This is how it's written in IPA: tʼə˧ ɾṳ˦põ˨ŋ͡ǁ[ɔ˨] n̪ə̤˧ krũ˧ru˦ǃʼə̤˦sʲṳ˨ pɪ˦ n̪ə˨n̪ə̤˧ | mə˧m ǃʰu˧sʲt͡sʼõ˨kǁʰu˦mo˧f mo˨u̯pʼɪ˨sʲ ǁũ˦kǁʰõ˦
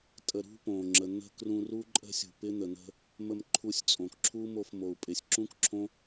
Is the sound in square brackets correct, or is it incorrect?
incorrect